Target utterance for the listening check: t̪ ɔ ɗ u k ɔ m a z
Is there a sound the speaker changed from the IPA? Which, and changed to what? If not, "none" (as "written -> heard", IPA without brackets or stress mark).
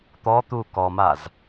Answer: ɗ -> t̪